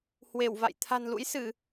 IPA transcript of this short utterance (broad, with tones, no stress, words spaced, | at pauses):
hwe˧˩wva̰˧˨j t̪ʰa̤˨˩nlṵ˧˥jsɨ˧˩˨